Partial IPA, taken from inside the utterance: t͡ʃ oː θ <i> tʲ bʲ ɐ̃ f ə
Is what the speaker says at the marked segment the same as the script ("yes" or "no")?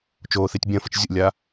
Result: yes